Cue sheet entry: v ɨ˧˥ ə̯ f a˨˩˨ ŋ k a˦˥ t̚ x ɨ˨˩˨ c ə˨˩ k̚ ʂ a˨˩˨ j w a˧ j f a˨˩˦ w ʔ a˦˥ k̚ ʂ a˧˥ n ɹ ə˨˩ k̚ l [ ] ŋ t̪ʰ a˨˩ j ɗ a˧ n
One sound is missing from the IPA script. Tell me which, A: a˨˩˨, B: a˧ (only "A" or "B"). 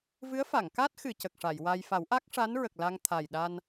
B